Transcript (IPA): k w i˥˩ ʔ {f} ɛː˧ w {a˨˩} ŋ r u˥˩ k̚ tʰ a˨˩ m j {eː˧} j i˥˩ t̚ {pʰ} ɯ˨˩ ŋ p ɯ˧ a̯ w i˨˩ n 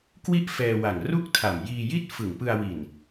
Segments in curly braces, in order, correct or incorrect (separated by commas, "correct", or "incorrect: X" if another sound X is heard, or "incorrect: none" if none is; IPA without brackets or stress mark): correct, correct, incorrect: iː˧, incorrect: f